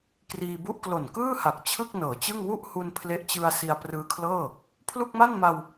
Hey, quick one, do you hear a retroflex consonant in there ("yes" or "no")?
no